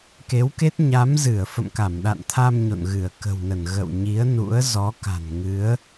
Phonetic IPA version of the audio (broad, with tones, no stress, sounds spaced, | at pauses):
k e˨˦ w k e˦˥ t̚ ɲ a˨˦ m z ɨ˧˩ ə̯ f ə̰˧˨ m k a˧˩ m ɗ a̰˧˨ n t̪ʰ a˧ m ɲ o̰˧˨ n ɣ ɨ˧˩ ə̯ k ə̤˨˩ w n ə˧˩ n ɣ ə̰˧˨ w ɲ i˨˦ ə̯ n ṵ˧˥ ə̯ z ɔ˨˦ k a̤˨˩ n ŋ ɨ˨˦ ə̯